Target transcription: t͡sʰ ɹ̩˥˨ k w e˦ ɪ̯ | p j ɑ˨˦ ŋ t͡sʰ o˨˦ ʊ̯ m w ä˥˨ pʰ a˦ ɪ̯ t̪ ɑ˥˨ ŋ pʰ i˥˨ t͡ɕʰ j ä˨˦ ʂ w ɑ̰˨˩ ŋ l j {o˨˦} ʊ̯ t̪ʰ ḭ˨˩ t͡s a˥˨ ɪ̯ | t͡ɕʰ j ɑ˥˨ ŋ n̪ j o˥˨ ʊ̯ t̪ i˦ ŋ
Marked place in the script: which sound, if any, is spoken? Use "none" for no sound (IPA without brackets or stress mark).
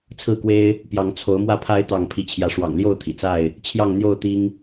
o˥˨